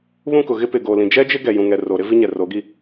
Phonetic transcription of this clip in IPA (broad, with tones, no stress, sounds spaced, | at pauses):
β ũ˦˨ k ʊ˨ ɣ ɪ˦ p ɪ˨ ɡ oː˨ l ĩ˨ d͡ʒ ɛ˦ d͡ʒ ɪ˦ ɡ ɛ˨ j ũ˨ ŋ ɛ˨ r oː˨ ɾ ɪ˦ v i˦ ɲ ɛ˨ r o˨˦ ɡ i˦˨